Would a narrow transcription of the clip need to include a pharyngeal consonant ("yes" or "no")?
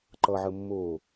yes